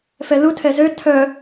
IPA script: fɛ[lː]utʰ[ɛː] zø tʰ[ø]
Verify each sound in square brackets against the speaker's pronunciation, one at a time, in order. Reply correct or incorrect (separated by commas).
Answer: incorrect, incorrect, incorrect